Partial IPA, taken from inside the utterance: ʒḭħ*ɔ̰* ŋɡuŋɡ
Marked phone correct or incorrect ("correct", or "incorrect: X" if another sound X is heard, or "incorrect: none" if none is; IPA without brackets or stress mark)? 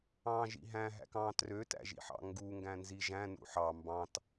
incorrect: ɑ̰